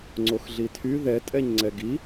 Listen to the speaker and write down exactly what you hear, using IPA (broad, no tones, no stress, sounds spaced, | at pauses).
ŋ͡ǀ o x ɮ i tʰ y ð ɛ tʼ ɛ ɲ ŋ͡ǀ ɛ ɡ i